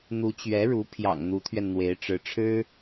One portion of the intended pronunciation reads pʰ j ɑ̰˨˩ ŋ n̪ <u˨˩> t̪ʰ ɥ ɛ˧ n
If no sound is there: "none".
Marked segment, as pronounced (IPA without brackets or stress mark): u˧˥